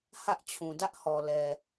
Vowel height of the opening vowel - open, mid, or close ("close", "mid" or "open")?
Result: open